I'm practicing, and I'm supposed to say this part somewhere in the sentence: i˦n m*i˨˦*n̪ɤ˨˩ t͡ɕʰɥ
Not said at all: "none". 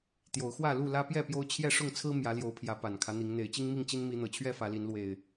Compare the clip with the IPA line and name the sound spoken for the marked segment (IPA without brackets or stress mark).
i˨˦